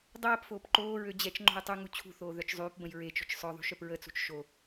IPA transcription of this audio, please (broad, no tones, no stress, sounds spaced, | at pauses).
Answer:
dˤ ɛː p f oː p ǃ oː ɹ ø d͡ʑ ɛ t͡ʃ ŋ͡ǃ o̤ j tˤ y ŋ u t͡ɕʰ ṳ θ oː ð œ t͡ʃ zˤ yː p b ə̃ j ɹ e t͡ʃ o̤ t͡ʃ sˤ œ ðˤ ṳ ʃ œ p ɹ ə t͡s ṳ t͡ʃ ʃ o